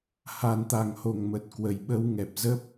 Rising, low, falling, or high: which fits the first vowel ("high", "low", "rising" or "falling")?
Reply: low